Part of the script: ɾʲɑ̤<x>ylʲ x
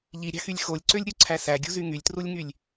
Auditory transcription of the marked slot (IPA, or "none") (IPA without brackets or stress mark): x